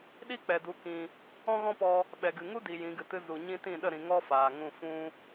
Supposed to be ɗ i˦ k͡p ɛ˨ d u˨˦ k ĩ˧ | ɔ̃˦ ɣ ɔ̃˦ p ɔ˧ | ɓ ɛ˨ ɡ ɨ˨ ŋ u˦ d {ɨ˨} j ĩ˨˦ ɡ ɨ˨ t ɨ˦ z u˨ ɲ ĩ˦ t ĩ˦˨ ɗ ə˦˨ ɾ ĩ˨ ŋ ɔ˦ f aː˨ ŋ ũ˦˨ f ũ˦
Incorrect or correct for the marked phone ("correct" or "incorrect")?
incorrect